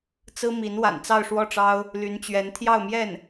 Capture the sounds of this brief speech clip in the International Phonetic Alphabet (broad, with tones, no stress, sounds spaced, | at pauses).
t͡s ɹ̩˥ m i˧˥ n w a̰˨˩ n t͡s ɑ˥˧ ʊ̯ ʂ w ɔ˥˩ ʈ͡ʂ ɑ˥ ʊ̯ | l y˧˥ n t͡ɕ ɥ ɛ˧˥ n t̪ʰ j ɑ˥˧ ʊ̯ m j ɛ˥˩ n